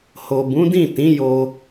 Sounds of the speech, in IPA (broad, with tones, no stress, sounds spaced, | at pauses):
h o˨ b ũ˨˦ d ĩ˦˨ t ĩ˨˦ j o˧